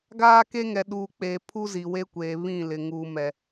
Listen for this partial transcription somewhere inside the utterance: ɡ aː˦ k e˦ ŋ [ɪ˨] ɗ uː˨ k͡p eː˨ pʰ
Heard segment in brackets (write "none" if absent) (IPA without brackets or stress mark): ɛ˨